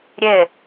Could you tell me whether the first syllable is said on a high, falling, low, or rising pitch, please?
falling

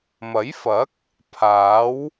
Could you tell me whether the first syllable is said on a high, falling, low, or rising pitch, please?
rising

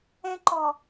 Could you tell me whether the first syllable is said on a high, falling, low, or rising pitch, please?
high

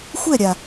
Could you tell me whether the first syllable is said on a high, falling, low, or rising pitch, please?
falling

